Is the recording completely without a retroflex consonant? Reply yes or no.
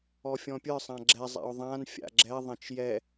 yes